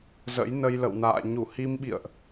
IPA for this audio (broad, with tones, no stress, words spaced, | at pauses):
zə̰˧˥jnə˧jlə̰˧˨wna̰ː˧˨ ɲu˧˩hi˧m ɓḭ˧˨ə̯ʔ